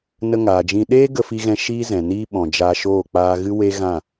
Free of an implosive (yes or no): no